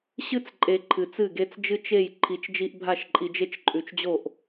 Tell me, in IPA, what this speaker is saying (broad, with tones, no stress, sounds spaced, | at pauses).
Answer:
ɕ ɨ˦ t͡s ǃʼ e˨ ǃʰ ɨ˨ t͡s ɨ˦˨ ɡ e˦ t͡s d͡ʒ ɨ˦ t͡ʃ e˦˨ j ǃʰ i˨˦ t͡ʃ d͡ʒ i˦ ʔ bʱ a˦˨ ʃ ǃʼ i˨ d͡ʒ e˦ t͡ʃ ǃʼ ʉ˨ t͡ʃ d͡ʑ o˦˨ ʔ